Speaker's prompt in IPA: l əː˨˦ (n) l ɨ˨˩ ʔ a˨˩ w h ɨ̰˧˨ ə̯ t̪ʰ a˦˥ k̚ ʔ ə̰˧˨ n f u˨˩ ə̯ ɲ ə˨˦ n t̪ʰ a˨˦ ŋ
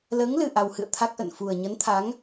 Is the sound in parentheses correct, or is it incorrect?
incorrect